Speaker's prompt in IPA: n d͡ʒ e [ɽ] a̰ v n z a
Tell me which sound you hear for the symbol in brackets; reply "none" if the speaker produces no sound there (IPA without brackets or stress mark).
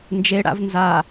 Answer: ɽ